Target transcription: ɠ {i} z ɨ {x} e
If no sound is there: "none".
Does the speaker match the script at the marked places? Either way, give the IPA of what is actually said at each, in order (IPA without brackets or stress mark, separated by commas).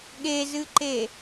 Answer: e, ǃ